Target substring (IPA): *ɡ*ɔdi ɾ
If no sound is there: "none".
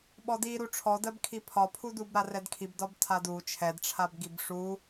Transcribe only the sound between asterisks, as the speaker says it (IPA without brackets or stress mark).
ɓ